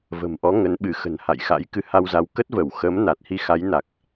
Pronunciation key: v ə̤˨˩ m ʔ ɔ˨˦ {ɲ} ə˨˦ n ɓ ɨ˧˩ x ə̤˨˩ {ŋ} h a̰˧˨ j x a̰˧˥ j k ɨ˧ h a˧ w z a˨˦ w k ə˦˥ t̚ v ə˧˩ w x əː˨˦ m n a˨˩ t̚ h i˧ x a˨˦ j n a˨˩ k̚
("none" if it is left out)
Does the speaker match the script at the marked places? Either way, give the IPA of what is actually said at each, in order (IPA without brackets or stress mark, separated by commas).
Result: ŋ, n